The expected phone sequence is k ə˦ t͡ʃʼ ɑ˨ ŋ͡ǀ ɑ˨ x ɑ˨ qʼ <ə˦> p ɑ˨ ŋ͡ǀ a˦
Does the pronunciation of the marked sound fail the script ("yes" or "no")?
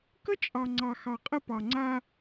no